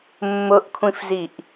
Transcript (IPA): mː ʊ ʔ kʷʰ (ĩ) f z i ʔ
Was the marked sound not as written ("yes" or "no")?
no